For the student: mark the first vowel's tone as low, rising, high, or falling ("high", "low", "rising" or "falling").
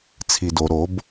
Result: low